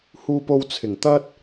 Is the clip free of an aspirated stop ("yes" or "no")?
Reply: no